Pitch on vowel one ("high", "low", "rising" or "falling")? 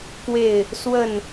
falling